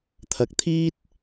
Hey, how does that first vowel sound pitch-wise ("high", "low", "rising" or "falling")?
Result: low